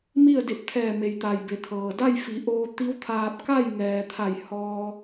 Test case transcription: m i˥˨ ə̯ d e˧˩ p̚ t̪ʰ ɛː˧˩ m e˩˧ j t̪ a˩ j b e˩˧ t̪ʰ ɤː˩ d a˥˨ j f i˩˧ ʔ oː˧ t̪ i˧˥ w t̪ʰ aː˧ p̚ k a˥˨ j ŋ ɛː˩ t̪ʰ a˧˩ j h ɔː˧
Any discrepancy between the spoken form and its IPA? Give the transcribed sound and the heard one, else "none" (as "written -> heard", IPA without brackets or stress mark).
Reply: none